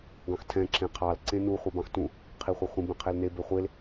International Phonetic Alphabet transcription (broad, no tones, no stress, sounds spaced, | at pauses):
ɡ ɑ̃ x tʰ ɛ̃ ǁ ẽ qʰ ɑ l ǀ ẽ n u χʷ i b ɑ̃ x t ũ | qʰ i χʷ ɑ χʷ ĩ b ɛ̃ qʰ e l n e b e χʷ e l